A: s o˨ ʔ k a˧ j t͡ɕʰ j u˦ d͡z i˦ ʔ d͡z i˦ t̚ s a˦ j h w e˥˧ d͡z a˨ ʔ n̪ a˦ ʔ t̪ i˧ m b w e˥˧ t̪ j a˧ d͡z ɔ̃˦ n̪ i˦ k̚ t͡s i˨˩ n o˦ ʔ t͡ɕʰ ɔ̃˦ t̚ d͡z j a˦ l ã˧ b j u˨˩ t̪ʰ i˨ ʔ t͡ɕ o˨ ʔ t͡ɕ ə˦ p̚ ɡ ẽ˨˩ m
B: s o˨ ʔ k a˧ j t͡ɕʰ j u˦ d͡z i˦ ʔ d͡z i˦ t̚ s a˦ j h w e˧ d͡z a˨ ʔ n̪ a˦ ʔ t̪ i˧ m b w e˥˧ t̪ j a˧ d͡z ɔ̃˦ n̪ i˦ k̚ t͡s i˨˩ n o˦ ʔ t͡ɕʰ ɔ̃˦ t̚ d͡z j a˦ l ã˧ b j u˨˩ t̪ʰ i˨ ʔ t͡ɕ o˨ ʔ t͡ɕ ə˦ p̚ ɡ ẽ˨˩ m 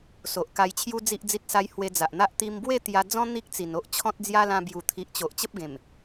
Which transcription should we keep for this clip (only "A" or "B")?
B